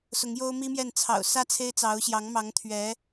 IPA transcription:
s ʊ˧˥ ŋ j o˥ ʊ̯ m i˥ m j ɛ˥˩ n t͡sʰ ɑ̰˨˩ ʊ̯ s ä˥˩ t͡sʰ e˥ ɪ̯ t͡s ɑ˧˥ ʊ̯ ɕ j ɑ˧˥ ŋ m ɑ˧˥ ŋ t̪ʰ ɥ ɛ˧˥

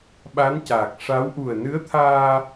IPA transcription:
ɓ a˧˥ n c aː˨˩ k̚ ʂ a˧˥ w ʔ u˨˩ ə̯ n ɨ˧˥ ə̯ t̪ʰ aː˧

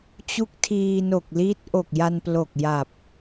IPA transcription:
t͡ɕ u˦˥ k̚ tʰ iː˧ n o˨˩ k̚ l i˦˥ t̚ ʔ o˨˩ k̚ j a˧ n p l o˨˩ k̚ j a˨˩ p̚

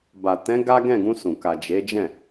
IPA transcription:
b a˨ t ɛ̃˨˦ ɡ a˦ ɡ ɛ̃˦˨ ɡ ũ˧ s ũ˨ k a˨ d͡ʒ e˨˦ d͡ʒ ɛ̃˦˨

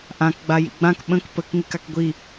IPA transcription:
ʔ ã k ɡ͡b a j ḭ ɡ͡b ã k ɓ ə̃ k p ə k ŋ i k a k ɡʷ i

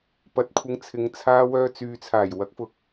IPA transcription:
p ɐ˨˥ t̚ kʷʰ ɪ˨˧ ŋ t͡sʰ ɪ˨˧ ŋ t͡sʰ aː˧ w œː˧ t͡s yː˨ t͡sʰ aː˨˩ j w ɐ˨˥ k̚ f ʊ˨ k̚

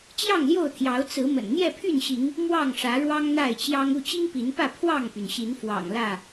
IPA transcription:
t͡ɕ j ɑ˥˨ ŋ l j o˥˨ ʊ̯ t̪ʰ j ɑ˨˦ ʊ̯ t͡s ɹ̩˨˦ m ə̰˨˩ n n̪ j ɛ˥˨ pʰ y˥˨ n ɕ i˨˦ ŋ | m w ɑ˥˨ ŋ ʂ ä˨˦ ɻ w ɑ˦ ŋ n̪ a˥˨ ɪ̯ t͡ɕ j ɑ˦ ŋ u˥˨ t͡ɕ i˦ ŋ p i˨˦ n p ä˥˨ pʰ w ɑ˥˨ ŋ p y˩ n ɕ i˨˦ n f w ɑ̰˨˩ ŋ l ä˥˨

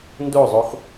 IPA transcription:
n d o zˤ o x

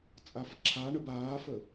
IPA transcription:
t͡sʼ a f ǁʰ a ɳ ə b aː f ə

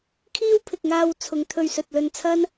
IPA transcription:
kʰ iː˥ w pʰ ɪ˨ k̚ ŋ aː˧ w t͡sʰ ʊ˨˧ ŋ t̪ʰ ɵ˧ ɥ s ɵ˨ t̚ l ɵ˧ n t͡sʰ ɐ˥ n

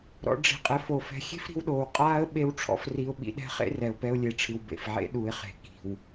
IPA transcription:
ɾ ɔ̰˧ ɖ͡ʐ i̤˨ qʼ ɘ˨ f o˨ f ɛ̤˧ xʲ e̤˦ f ɾ i̤˧ w ɗ oː˨ w qʼ aː˦ ə̯ ɓ e˦ w ʈ͡ʂʰ ɔ̰˦ f r i˧ ʊ̯ ɓ ḭ˧ ɗ ɛ̤˦ χ ḛ˦ r ɛ˨ ʊ̯ p ɛ˧ ʊ̯ lʲ e˨ ʈ͡ʂʰ ɨ˨ w b ḛ˨ f ʕ ḛ˦ ɗ u˨ ɪ̯ χ e̤˨ k i̤˨ w

